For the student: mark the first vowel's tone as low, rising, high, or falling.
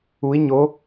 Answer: rising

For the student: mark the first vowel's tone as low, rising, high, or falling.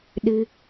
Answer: high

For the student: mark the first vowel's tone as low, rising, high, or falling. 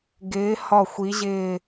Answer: rising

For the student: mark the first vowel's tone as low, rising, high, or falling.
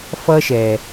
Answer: high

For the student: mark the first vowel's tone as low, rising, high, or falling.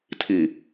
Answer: low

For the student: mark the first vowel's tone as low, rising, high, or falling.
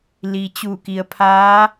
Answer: low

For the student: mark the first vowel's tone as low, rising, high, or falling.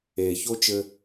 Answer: low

